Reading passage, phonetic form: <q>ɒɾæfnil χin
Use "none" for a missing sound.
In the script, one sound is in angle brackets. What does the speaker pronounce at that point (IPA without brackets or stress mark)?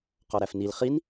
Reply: q